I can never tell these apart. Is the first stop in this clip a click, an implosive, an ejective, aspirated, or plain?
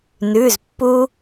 plain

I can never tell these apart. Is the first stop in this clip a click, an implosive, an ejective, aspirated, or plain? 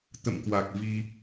plain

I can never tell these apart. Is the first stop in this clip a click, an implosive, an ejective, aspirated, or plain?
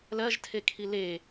aspirated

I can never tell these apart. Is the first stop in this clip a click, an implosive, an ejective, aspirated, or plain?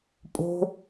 ejective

